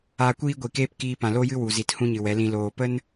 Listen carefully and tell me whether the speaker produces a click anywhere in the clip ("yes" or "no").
no